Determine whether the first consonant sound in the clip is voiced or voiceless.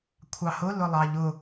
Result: voiceless